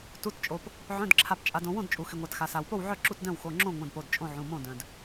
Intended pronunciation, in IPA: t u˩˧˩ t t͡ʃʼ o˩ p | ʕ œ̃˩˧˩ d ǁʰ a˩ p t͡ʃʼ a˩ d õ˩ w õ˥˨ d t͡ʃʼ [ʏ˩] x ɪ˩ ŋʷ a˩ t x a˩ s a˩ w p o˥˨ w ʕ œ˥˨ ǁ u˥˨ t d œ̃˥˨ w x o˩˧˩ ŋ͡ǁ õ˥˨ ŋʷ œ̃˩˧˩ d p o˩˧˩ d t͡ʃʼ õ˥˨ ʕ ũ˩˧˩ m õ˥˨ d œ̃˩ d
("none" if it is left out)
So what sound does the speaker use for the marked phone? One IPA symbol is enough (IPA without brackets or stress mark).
u˩